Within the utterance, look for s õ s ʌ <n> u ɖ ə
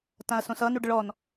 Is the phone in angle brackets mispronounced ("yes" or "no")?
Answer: no